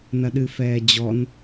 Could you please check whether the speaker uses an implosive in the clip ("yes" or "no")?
yes